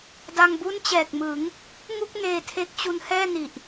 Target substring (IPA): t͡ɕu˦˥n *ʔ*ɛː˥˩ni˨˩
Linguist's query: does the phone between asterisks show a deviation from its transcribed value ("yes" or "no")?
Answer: yes